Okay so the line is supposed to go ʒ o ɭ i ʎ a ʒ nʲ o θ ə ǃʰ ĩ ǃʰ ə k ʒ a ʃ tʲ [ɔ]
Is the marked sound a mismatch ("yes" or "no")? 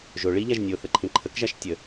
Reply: yes